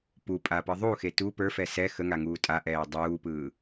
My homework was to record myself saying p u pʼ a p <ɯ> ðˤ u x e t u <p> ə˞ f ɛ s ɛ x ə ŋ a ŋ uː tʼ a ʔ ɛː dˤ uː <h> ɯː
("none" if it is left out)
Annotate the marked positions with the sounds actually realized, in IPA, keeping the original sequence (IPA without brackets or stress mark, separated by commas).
ɯ, p, p